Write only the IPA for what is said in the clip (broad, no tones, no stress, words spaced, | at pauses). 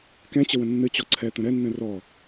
kɛ̃t͡ɕəwə̃ nːɨt͡ɕɔ ǀʰɛt̪ə̃ ɾɛnːɛ̃ rɔ